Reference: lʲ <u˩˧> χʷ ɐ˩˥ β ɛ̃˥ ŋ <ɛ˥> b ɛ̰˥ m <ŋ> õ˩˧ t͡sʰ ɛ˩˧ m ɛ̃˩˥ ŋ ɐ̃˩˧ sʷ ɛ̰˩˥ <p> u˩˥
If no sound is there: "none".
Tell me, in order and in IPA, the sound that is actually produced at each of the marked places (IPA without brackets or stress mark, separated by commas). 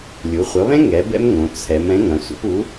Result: u˩˧, ɛ˩˥, ŋ, p